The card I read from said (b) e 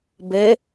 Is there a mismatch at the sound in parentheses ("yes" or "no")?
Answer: no